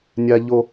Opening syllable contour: high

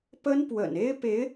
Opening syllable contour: high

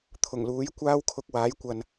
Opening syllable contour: low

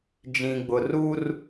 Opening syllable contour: low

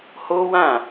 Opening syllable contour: high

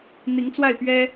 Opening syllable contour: rising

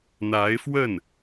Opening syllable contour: rising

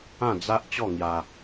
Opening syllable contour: falling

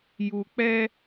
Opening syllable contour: low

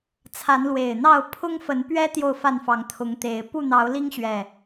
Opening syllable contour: rising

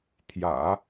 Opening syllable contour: low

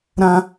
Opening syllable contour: high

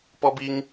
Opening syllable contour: high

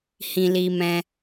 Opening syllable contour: low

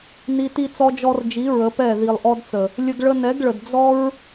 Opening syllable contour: high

